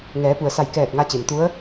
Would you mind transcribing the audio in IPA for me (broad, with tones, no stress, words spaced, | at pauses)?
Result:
ŋɛː˩˧pu˩ə̯sa˧˩jkɛː˧˩t̚ ŋa˧t͡ɕe˩mt̪u˧˥ə̯